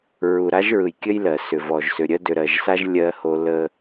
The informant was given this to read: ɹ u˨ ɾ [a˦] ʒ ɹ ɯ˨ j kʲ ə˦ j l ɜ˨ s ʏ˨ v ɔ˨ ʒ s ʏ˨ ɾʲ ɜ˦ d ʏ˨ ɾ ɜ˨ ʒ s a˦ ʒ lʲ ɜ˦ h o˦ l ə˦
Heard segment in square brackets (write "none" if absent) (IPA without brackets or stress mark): a˦